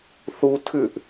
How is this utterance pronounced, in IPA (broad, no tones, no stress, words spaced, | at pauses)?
θu tʰʉʔ